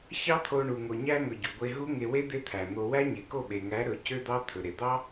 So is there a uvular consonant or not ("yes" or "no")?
no